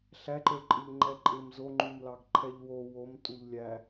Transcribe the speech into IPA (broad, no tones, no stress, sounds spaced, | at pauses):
ɬ æ ǃ ə˞ ǃʼ ɪ ʎ ŋ͡ǃ ɛ ǃʼ ɪ m z o ŋ͡ǃ u m l ɑ ɡ ǃʰ ɛ ʎ w o w o m tʼ u ʎ lʲ æ